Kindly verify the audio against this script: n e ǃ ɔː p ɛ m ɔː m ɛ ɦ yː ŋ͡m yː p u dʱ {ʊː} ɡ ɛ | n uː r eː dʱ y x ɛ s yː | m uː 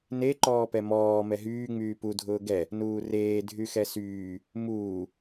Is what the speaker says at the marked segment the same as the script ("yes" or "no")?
yes